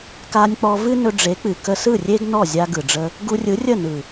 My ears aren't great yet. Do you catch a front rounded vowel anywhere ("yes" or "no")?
no